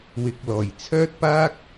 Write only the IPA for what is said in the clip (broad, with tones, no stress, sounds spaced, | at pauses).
w ɪ˨ k̚ l ɔː˨˩ j t͡sʰ œː˥ t̚ p aː˥ k̚